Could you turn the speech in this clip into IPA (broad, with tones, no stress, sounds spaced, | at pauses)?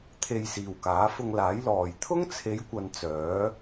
t̪ʰ e˧ j s iː˨ w k aː˨˥ f ʊ˧ ŋ l aː˨˥ j l ɔː˨ j t̪ʰ ʊ˥ ŋ t͡sʰ e˨˧ j kʷ ɐ˨ n t͡s œː˨˥